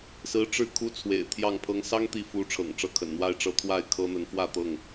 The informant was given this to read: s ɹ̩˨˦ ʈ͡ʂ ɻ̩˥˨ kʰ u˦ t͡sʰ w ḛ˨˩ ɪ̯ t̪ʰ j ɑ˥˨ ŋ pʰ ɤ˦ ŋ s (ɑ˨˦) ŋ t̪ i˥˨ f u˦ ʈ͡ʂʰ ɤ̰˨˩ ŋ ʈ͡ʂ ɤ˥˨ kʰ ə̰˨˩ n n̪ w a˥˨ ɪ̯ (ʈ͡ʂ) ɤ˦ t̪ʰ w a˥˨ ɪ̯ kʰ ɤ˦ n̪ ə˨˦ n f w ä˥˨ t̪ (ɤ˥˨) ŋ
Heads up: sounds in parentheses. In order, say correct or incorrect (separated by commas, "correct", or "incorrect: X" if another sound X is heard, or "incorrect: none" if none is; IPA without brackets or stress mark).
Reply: incorrect: ɑ˦, correct, correct